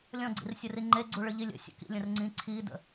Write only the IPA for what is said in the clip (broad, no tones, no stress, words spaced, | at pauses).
lʲɔ̃ɡ͡ǀḭrsʲəri ŋ͡ǃeɡ͡ǀuɭɨʎi lʲə̰sʲə̰ kḭlʲə̃rŋ͡ǀĩ ǀʰidə̰